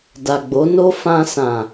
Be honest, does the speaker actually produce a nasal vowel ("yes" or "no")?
yes